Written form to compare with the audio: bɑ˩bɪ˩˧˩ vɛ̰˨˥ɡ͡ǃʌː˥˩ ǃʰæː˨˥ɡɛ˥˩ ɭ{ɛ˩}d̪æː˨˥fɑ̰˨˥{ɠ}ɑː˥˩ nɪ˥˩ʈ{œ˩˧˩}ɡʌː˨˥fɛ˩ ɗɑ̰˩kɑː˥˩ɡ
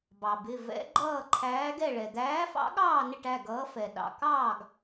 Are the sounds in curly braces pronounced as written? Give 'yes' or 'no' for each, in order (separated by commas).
yes, yes, no